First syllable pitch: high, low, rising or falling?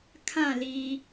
falling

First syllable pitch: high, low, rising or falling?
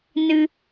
low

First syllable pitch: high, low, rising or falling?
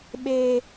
high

